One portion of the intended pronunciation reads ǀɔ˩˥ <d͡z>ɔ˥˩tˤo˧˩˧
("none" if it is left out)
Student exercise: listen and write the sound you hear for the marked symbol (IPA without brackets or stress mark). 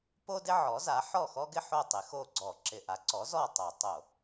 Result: z